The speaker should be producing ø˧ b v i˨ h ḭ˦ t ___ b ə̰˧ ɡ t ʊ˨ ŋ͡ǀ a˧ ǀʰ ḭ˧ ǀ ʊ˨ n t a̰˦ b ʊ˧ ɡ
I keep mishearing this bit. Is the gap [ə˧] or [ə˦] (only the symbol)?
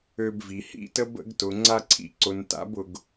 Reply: ə˦